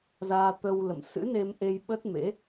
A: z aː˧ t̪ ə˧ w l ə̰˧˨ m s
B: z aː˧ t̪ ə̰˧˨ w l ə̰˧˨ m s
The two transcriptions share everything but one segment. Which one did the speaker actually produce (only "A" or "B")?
A